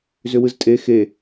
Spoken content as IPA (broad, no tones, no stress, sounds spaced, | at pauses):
z ʏ w ɯ z tʼ e x e